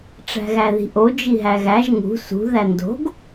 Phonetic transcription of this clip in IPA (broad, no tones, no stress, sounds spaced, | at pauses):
ʈ͡ʂ æ̤ ɣ æ ð i̤ ʔ o d͡ʒ i ɦ æ ɣ æ ʒ ŋ ṳ s ṳ ð æ n d o̤ ɡ